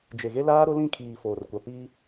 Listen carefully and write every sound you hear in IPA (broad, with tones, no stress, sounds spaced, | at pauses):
d͡ʒ e˨ ɣ e˦ l aː˦ ɾ ʊ˦ l ĩ˦˨ kʰ iː˨ f oː˨ r kʷ a˨ p iː˦